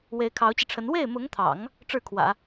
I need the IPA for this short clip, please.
w e˧˥ ɪ̯ kʰ ɑ˧˥ ʊ̯ t͡ɕ i˧ ʈ͡ʂʰ ə˧˥ n w e˥˩ ɪ̯ m ʊ˧˥ ŋ t̪ʰ ɑ̰˨˩˦ ŋ | ʈ͡ʂ ɻ̩˥˩ kʰ w ä̰˨˩˦

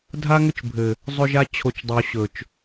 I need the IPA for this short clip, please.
dʱ a˦ ŋ ʏ˦ t͡ʃ bʱ ɘ˨ | zˤ ɵ˦ ʒ a˦ t͡ɕʰ o˨ t͡ʃ dˤ o˨ ɕ ɵ˨ t͡ʃ

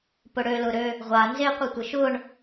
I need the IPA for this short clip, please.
p ʊ ɽ ø l ʊ ɾ ø | ʁʷ a n z e qʷ i tʷ ə ʃ ʊ ɳ

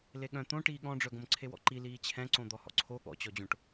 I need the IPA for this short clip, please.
l e ɠ œ̃ t̪ õ ʈ iː ɠ ɔ̃ ɖ͡ʐ œ ɡ õ m ǀʰ e w ɔ̰ ǃ i l iː t͡ɕʰ ɛ̃ ǀ õ d̪ ɔ h ɔ̰ ǀʰ o ɠ ɔ̰ t͡ɕ ɔ d͡ʑ õ ʈ

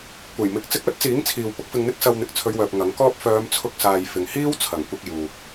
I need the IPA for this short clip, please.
kʷ ɐ˨˩ j m ɪ˨ k̚ t͡s ɪ˧ k̚ œː˥ t̚ t͡s iː˨˥ ŋ t͡sʰ iː˨ w p ʊ˥ k̚ f ɪ˧ ŋ n̪ ɪ˥ k̚ s ɐ˧ w n̪ ɪ˨ k̚ t͡sʰ ɵ˨˧ ɥ w œː˨ p̚ ŋ ɐ˨˥ ŋ k ɔː˥ p̚ f œː˨˧ m t͡sʰ ʊ˧ k̚ s aː˨ j f ɪ˨ ŋ h iː˥ w t͡sʰ ɐ˨˩ ŋ kʷ ɪ˧ k̚ j uː˨ k̚

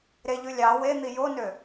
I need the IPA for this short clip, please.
ɾ e ʎ ʉ lʲ ɑ w e n̪ i j o n ø

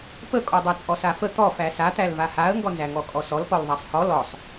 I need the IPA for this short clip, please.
p ə kʼ ɔ dˤ æ t͡sʼ ɔ s a f ə t̪ ɔ f æ s a t̪ æ l v a h a ə̯ ŋ ɡ ɔ n z æ ŋ ɔ kʼ ɔ s ɔ l p ɔ l ðˤ a sˤ h ɔ l ɔ sˤ

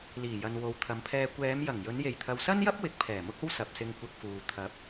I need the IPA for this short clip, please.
l iː˨˩ j ɐ˨ n w o˨˧ w t̪ʰ ɐ˨˧ m pʰ ɛː˧ kʷ ɛː˨˧ m j ɐ˨˩ ŋ j ɵ˨˧ n j e˨˩ j t̪ʰ ɐ˨ w s ɐ˥ n j ɐ˥ p̚ w ɪ˨˥ k̚ pʰ ɛː˨˩ m ʊ˥ k̚ o˥ w s ɐ˨ p̚ s ɪ˧ ŋ kʷ ɐ˧ k̚ f uː˨ t̪ʰ ɐ˨˥ p̚

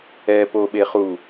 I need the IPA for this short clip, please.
ɛ p o ɓ e χ u

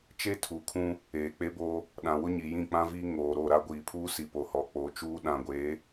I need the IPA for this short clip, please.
t͡ʃ e˦ tʰ u˨ kʰ ũ˦ | eː˨ k͡p e˦ b oː˦ | ɗ ã˨ w ʊ˦ ɲ i˨ j ĩ˦˨ k͡p ã˦ v iː˦ ŋ oː˨ ɾ o˦˨ ɾ a˦ ɡʷ iː˨ pʰ uː˦ s i˨ p o˨ h ɔ˨ k͡p o˨˦ t͡ʃ uː˦ ɗ ã˨ ɡʷ eː˨˦

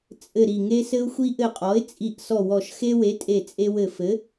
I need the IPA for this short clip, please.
t͡sʼ ɘ˧˩ ɾ i˧˩ ŋ e˦ s ɘ˦ ʊ̯ xʷ i˦ ʔ ɘ˧˩ qʼ ɔ˩˥ ɪ̯ t͡sʼ i˧˩ ʔ s ɔ˧˩ w ɔ˧˩ ʃ x e˦ w e˩˥ tʼ e˧˩ t͡sʼ e˦ w ɘ˧˩ f ɘ˩˥

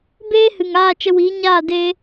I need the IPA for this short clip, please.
b eː˦ h ɨ˨ ŋ aː˦˨ t͡ʃ ə˧ w iː˨˦ ɲ aː˦˨ d e˦

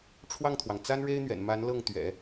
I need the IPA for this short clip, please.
ʈ͡ʂʰ w ɑ˥˩ ŋ t̪ʰ w ɑ˩ ŋ t͡s a˥ n ɻ e˥ ɪ̯ n̪ ɥ ɛ̰˨˩ n m a˧˥ n l ɤ˥˩ ŋ t̪ ɥ ɛ̰˨˩˦

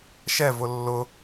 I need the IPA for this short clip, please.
ʃ ɛ v ʊ lː ʊ

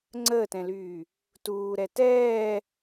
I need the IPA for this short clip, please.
ŋ͡ǀ əː t ɛ̃ l yː | t uː ɾ ɛ t ɛː

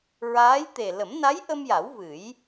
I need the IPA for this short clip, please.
ɹ aː˧˥ j t̪ e˨˩ l ə˨˩˦ m n a˧˥ j ʔ ə˧ m j a˨˩˦ w v ɨ˨˩˦ j

